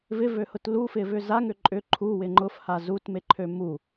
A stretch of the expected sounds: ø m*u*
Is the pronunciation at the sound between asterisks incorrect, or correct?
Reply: correct